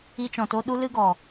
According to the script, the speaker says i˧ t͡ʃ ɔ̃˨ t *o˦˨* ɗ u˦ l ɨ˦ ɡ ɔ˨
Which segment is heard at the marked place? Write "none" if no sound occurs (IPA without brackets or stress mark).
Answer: o˧